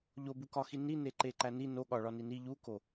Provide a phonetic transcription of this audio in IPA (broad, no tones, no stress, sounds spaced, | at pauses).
ʎ o b u k ɒ x i n i n e ǃ e ǃ æ n i n o ɠ ɒ ɭ ɒ n i n i ʎ u k o